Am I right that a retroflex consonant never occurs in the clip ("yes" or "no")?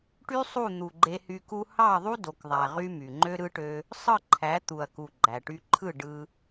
no